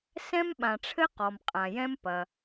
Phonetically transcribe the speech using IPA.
sɛ̃˥mɓã˨ʈ͡ʂʰɘ˥ qɔ˨mqʼã˨jɛ̃˥m pɐ˨

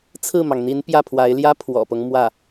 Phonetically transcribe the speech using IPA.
t͡sʰɹ̩˥˩mɑ˩ŋn̪i˧˥n pjä˥˩pʰwa˧˥ɪ̯ljä˥ pʰwɔ̰˨˩pɤ˦ŋ mwä˥˩

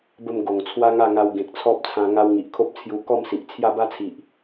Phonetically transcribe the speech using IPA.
bə˧m ɡo˨˩ŋt͡sʰwa˦ŋa˥˧ŋa˧w ɡẽ˨k̚t͡sʰɔ˦p̚t͡sʰã˧ ŋa˧w ŋi˨ʔkʰo˦p̚t͡sʰju˧ kɔ˥˧msi˨ʔ t͡sʰja˥˧ba˦t͡sʰi˨ʔ

